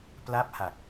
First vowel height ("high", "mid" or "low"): low